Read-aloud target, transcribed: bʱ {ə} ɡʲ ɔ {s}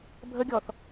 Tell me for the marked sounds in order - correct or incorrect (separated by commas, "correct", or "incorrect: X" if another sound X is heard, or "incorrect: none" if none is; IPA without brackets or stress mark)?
correct, incorrect: θ